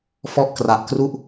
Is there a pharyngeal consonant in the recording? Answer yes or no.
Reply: no